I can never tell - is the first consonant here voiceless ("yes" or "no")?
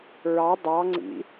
no